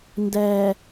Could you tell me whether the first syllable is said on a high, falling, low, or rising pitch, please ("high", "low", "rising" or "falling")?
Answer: low